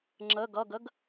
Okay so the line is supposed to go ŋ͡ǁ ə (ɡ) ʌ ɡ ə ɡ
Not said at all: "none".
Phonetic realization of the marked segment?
ɡ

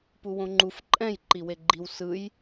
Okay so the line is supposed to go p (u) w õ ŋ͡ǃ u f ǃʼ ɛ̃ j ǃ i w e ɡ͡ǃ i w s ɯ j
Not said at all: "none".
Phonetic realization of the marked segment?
u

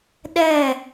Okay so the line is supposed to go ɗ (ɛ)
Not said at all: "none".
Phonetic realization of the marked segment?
ɛ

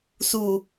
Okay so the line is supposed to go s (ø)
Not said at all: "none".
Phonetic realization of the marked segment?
u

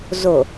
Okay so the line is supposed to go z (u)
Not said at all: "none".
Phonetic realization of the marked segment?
o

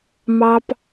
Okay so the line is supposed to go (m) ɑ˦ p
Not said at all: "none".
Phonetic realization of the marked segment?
m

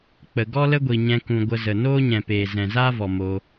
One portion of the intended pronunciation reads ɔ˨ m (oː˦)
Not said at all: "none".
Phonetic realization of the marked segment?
oː˧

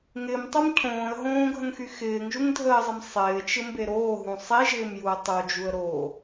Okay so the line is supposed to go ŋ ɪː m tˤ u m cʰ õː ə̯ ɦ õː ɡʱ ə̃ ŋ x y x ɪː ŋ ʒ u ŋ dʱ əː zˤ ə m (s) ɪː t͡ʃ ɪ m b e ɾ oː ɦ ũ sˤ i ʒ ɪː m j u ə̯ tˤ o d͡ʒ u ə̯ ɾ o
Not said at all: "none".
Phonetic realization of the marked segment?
sˤ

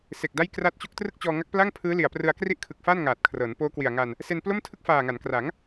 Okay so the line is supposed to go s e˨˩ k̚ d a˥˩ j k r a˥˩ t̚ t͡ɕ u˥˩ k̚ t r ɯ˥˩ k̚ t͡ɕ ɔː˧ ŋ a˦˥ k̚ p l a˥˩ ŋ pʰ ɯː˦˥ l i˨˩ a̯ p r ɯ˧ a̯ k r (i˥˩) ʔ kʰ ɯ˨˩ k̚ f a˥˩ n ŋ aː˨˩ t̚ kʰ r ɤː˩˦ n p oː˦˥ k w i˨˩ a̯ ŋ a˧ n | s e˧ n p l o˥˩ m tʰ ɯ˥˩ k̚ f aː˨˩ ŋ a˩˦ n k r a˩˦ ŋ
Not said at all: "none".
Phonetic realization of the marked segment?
i˥˩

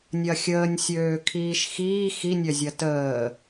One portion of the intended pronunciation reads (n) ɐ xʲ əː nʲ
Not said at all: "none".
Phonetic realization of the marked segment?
nʲ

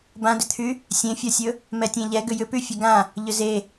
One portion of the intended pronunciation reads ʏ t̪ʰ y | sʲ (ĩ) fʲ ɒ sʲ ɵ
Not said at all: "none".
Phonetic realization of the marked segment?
ẽ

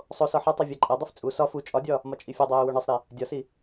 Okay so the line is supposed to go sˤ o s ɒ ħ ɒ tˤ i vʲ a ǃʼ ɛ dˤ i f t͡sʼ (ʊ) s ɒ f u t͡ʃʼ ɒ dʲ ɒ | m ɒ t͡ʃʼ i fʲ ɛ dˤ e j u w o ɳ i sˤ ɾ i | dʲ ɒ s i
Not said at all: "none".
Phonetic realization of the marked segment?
u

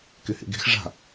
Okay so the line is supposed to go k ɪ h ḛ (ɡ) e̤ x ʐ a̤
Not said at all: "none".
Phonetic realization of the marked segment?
ɡ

